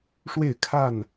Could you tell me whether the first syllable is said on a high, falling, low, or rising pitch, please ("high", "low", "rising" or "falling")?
falling